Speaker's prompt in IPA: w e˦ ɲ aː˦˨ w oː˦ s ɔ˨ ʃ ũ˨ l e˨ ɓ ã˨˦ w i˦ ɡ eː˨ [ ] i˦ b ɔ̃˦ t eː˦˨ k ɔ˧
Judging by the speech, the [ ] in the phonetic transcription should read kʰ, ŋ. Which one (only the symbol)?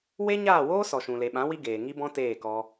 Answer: ŋ